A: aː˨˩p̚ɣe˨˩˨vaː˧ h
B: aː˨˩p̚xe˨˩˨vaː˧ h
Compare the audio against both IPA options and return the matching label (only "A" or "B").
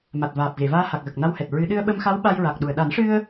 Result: A